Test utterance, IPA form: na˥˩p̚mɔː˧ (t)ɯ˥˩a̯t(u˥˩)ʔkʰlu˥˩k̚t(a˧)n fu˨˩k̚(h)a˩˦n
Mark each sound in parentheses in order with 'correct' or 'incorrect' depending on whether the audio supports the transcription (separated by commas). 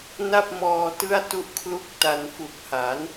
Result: correct, correct, correct, correct